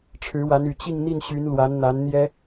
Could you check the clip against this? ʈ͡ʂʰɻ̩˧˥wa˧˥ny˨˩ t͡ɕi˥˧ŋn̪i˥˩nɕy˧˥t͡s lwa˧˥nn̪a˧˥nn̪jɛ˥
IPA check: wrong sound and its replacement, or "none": t͡s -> n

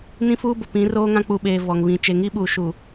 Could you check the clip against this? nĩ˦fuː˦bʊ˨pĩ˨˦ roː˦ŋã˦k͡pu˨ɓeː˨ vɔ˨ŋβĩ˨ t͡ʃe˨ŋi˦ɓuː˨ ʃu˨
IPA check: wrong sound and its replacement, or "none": none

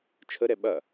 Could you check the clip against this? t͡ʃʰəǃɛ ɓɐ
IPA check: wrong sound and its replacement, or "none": ǃ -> ɾ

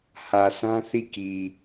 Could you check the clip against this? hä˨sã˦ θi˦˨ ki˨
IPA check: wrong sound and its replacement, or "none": none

